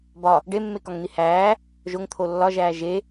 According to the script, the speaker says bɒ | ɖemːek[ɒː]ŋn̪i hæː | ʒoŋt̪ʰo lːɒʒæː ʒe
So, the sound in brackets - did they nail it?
no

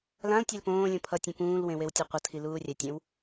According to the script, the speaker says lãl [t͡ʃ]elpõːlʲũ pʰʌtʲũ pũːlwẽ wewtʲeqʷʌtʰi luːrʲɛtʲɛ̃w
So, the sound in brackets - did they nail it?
no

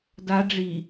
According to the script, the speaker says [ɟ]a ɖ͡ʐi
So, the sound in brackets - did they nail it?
no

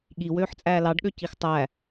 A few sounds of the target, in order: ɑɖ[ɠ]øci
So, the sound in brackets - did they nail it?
yes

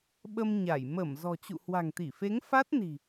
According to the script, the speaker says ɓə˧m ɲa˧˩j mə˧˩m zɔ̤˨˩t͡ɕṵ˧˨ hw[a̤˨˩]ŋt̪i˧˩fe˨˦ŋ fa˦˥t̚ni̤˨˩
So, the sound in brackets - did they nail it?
yes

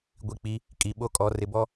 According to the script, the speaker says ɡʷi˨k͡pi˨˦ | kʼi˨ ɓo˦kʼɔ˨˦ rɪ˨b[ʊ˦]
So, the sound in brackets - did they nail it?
no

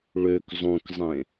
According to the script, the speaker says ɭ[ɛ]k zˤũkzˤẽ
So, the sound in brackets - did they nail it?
no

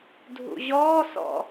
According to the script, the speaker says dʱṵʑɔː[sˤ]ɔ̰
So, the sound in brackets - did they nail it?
no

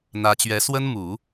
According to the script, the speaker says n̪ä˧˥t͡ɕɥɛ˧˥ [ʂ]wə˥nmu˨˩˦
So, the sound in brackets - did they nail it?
no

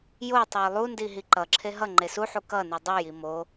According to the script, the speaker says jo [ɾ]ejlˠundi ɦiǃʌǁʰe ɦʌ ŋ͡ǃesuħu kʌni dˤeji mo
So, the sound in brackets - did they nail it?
no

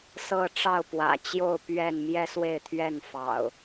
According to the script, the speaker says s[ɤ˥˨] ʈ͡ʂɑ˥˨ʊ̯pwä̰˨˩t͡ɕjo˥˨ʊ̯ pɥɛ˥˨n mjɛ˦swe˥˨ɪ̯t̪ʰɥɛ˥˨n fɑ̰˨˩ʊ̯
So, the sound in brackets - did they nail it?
yes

